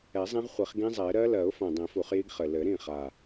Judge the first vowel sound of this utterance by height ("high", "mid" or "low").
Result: mid